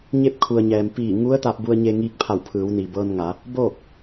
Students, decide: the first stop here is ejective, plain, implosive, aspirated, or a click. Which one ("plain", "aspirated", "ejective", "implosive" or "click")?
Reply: plain